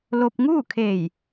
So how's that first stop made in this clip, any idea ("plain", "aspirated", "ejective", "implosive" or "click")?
plain